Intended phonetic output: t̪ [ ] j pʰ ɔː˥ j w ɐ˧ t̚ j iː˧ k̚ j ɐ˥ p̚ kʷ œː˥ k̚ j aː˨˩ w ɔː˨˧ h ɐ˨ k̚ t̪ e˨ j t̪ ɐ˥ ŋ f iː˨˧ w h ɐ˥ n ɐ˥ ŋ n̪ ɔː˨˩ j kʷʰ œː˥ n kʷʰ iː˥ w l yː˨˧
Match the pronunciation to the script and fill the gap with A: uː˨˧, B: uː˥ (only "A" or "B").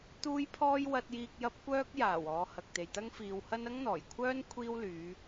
B